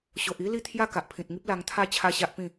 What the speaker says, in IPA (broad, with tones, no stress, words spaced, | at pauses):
ɕo˨ʔi˦li˥˧ t̪ʰja˥˧ka˨ʔpʰĩ˨t̚ŋi˦p̚ la˧ŋt̪ʰa˦ t͡ɕʰa˥˧ɕa˦ʔpĩ˥˧